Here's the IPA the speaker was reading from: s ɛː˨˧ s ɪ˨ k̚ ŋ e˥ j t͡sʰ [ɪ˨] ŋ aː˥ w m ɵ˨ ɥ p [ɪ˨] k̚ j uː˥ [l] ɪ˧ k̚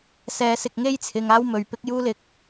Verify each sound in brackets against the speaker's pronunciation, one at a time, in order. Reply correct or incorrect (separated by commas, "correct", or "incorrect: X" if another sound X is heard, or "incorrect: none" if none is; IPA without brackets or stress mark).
correct, incorrect: ɪ˥, correct